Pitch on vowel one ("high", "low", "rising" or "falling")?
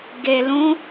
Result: low